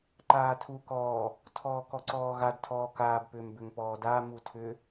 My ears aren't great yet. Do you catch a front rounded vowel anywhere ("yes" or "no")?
yes